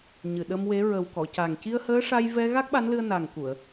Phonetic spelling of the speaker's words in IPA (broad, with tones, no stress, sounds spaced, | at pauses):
ɲ ɨ˨˩ ɗ ə˧ m w e˧˥ ɹ ə˨˩ w k ɔ˨˩˨ c a˨˩ ŋ c i˧ ə̯ h əː˧˥ ʂ a˧ j v ɛ˧ ɣ a˦˥ k̚ ɓ a˧˥ n l ɨ˧ ə̯ n a˨˩ ŋ k u˨˩˨ ə̯